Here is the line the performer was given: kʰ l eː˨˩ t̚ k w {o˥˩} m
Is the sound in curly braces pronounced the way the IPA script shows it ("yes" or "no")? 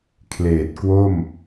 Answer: yes